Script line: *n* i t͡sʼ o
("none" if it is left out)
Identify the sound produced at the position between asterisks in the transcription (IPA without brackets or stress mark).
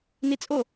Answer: n